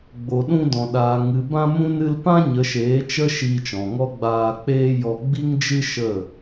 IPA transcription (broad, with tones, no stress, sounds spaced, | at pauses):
ɡ͡b o˨ ɗ ũ˧ d ɔ̃˨ ɗ aː˨ ŋ ɨ˨ b ã˧ m ũ˧ n ɨ˧ l p ã˦ ɲ ə˨˦ ʃ eː˨˦ t͡ʃ ə˦ ʃ iː˧ t͡ʃ ɔ̃˨ ŋ ɔ˦ ɡ͡b aː˧ k͡p eː˦ j ɔ˧ ɡ͡b i˦ ŋ d͡ʒ ɨ˦ ʃ ə˦˨